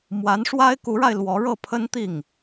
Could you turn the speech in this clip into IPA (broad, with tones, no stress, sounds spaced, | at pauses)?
m w a˧˥ n ʂ w a˥ ɪ̯ k u˧˥ ɻ a˧ ɪ̯ l w ɔ˧˥ ɻ ɤ˥˩ pʰ ə˥ n t̪ i˥˩ ŋ